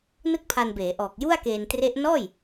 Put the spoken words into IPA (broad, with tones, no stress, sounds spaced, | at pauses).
n ɯ˥˩ k̚ pʰ a˧ n b eː˩˦ ʔ ɔː˨˩ k̚ j u˥˩ a̯ k eː˧ n t r e˦˥ ʔ n ɔː˥˩ j